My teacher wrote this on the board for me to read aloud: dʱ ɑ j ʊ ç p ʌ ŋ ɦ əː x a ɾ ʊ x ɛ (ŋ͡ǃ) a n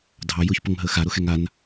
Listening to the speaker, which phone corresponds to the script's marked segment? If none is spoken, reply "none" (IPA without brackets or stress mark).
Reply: ŋ